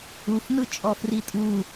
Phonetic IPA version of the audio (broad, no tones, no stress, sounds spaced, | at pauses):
u f n ɯ t͡ʃʼ ɔ f r i tʼ u